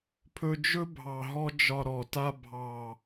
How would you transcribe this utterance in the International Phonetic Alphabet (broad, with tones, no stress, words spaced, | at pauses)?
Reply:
pʰɵ˧d͡ʒɵ˦bʱɑ˨ ɦɔ˦d͡ʒɒ˧ɾɔ˨ta˦ bʱɑ˨